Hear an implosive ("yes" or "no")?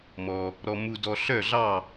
no